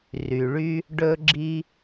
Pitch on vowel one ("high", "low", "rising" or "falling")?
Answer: low